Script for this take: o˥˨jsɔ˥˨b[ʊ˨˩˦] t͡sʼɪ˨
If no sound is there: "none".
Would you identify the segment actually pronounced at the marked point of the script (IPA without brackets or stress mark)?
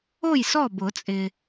ʊ˨˩˦